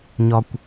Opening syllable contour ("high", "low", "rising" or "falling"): high